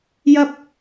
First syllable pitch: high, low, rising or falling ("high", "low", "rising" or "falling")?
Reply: high